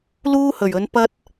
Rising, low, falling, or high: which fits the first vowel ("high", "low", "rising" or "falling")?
high